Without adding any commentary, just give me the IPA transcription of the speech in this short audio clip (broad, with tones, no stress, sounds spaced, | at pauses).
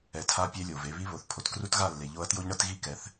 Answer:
ɛ˨˦ tʰ a˦ pʲ e˦ lʲ o˨ v e˧ β i˦ β o˨ θ pʰ o˨ t k r u˦ t ɣ a˦˨ lː e˨ ʎ o˧ ɐ̯ t j o˦ ʎ ɳ ɤ˦ t ɣ i˦˨ k ɛ˨˦ θ